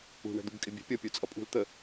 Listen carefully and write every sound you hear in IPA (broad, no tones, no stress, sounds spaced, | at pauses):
ṳ ɳ ɛ̤ d̪ u b kʼ ɪ bʲ ɛ̤ pʲ ʌ pʲ ə˞ t͡sʼ ʌ pʼ ṳ l t̪ ə